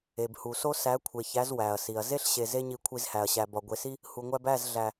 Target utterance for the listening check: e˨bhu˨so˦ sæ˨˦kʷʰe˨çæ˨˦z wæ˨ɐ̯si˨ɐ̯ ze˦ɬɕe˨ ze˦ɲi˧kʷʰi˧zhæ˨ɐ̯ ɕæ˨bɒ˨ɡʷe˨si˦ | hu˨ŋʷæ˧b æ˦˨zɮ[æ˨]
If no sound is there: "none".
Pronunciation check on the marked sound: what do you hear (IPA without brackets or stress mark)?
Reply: æ˨